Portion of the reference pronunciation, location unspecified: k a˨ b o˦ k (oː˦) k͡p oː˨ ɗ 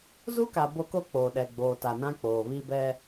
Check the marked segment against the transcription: incorrect: o˦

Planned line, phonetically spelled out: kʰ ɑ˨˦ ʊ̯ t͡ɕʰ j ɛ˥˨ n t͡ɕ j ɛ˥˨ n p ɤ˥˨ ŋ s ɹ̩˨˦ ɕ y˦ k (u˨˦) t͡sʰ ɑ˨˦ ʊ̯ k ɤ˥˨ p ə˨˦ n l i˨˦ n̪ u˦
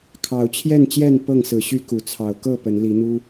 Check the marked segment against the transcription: incorrect: u˨˩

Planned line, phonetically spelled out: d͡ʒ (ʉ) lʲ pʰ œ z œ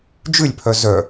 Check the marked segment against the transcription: correct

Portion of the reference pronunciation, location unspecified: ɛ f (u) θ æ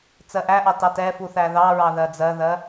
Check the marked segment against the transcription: correct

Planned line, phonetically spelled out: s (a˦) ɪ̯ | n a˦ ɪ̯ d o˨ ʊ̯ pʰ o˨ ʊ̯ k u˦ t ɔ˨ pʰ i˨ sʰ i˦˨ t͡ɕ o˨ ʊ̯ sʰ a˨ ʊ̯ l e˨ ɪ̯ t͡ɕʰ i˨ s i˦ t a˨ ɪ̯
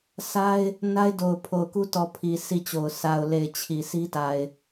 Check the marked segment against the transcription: correct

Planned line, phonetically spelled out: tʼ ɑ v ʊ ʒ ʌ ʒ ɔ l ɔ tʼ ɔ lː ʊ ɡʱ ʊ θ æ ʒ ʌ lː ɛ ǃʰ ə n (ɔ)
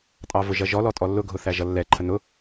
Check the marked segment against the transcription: incorrect: ʊ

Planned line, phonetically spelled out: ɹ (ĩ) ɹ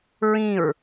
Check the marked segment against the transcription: correct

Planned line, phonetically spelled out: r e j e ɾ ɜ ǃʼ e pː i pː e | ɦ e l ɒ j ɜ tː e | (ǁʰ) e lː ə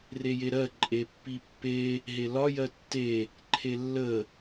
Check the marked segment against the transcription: incorrect: ǃʰ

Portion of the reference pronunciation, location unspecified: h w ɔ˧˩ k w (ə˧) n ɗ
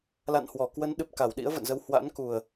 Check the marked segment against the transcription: incorrect: ə˨˦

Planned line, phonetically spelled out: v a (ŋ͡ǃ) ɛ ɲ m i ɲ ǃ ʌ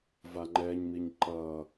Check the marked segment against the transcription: correct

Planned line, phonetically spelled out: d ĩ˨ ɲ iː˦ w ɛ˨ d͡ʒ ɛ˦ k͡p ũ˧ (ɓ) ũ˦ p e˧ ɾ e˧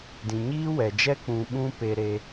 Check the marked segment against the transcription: correct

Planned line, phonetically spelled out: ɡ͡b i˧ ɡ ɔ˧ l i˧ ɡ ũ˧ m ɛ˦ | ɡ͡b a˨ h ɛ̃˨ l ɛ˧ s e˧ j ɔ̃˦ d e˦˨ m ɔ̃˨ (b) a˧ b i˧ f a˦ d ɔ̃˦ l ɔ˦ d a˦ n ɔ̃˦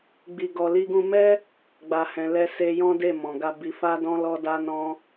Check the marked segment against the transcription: incorrect: ɡ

